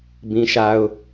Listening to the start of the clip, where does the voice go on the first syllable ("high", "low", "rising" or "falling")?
high